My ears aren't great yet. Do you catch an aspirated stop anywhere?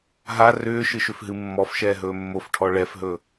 yes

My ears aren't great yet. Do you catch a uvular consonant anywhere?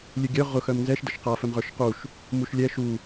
yes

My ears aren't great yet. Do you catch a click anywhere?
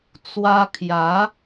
no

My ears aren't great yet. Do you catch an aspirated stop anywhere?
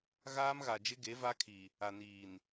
yes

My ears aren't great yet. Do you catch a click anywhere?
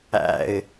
no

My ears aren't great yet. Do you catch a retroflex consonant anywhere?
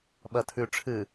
yes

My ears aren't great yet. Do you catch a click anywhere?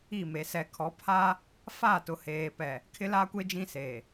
no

